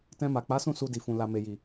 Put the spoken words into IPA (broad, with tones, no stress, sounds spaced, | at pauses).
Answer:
t ɛ̃˧ m a˨ k͡p a˨˦ s ũ˦˨ s u˧ d i˨ f ũ˨ l a˨ m e˨ j i˨